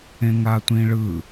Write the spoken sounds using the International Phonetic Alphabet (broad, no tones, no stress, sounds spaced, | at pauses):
ẽ ŋ a tʷ ĩ ɭ ɯ